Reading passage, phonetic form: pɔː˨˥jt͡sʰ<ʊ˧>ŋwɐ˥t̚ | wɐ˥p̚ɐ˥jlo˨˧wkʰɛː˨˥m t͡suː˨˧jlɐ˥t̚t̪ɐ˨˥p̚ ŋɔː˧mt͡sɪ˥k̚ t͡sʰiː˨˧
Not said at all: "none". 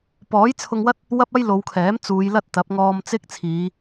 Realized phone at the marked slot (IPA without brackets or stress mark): ʊ˧